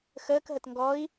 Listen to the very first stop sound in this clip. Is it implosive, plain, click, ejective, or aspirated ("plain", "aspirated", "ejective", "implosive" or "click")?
plain